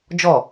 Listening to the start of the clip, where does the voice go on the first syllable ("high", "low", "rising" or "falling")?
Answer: falling